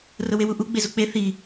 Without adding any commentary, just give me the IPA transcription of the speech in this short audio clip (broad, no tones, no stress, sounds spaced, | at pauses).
r ʊ w e w u ʔ u ɡ͡b e z u k͡p e θ i